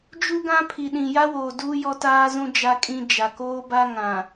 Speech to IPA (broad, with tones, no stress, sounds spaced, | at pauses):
d͡ʒ u˦ ɡ ã˦ pʰ i˨ ɗ ĩ˨ j a˦ w oː˨ d uː˦ j ɔ˦ t aː˦ z ũ˦ d͡ʒ a˦ kʼ ĩ˦ d͡ʒ a˨ k oː˦ b a˦ ŋ ã˨